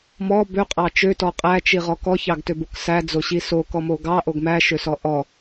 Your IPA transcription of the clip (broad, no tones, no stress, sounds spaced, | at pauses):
m ɔ b ø qʼ ɑ t͡ʃ ø t ɔ qʼ æ t͡ʃ i ʁ ɔ k ɔ ç ɑ ɡ t ø b o k s æ d͡z o ɕ i s o k ɔ m o ɡ ɑ ʔ o ɡ m æ ʃ ø s ɔ ʔ ɔ